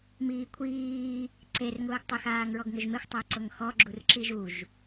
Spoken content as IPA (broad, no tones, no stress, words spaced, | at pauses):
miːkʷʰiː | ǀerŋʊːɡtˤɪxaːŋ ɹɔɡŋʊʒmexʷ tˤʊːǀʊŋxɔ ɡ͡ǁurǁiʒuʒ